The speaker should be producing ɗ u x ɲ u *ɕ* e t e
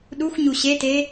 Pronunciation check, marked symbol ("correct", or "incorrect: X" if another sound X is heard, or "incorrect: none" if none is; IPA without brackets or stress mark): correct